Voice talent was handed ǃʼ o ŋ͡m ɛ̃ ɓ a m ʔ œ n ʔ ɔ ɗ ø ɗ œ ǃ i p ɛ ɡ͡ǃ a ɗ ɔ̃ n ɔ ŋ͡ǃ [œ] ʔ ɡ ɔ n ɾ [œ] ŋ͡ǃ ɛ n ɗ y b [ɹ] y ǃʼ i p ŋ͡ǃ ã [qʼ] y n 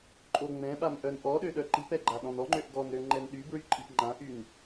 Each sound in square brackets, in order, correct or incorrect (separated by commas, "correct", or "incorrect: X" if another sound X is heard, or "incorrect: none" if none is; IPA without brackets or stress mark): incorrect: ø, incorrect: ø, correct, incorrect: ʔ